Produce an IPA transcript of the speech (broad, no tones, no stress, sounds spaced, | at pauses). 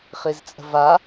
χ i z t͡sʼ ə̤ v a